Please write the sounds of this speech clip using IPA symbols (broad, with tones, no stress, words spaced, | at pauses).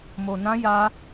mo˧nã˦ ja˦